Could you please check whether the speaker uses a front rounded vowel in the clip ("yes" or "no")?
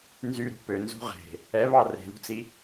yes